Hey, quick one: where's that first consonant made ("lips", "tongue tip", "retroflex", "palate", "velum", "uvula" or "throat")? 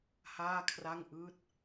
throat